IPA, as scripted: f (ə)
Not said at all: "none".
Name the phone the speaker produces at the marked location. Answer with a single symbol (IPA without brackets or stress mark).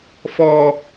ɔ